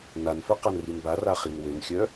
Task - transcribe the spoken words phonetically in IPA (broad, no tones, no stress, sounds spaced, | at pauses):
n a n f œ q a n r i n b a r a χ i n w ø n xʲ œ